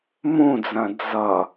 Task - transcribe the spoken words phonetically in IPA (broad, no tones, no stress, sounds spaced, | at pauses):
m ũ d͡z ɐ̃ d͡z ʌ